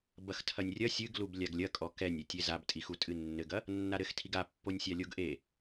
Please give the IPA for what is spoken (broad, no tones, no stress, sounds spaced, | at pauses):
b ɐ x tʰ ɐ nʲ rʲ ɐ sʲ ɨ ɡ l u b lʲ a ɡ lʲ ɐ kʼ ɔ k ɛ nʲ e tʲ e z a b tʼ i x u tʼ ɨ nː ɘ ɡ ɐ | nː a ɾ ɘ x tʰ i ɡ a pː o nʲ sʲ a lʲ o ɡ ʔ e